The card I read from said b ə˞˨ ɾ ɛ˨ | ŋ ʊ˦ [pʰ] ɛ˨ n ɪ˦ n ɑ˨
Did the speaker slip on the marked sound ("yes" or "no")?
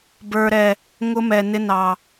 yes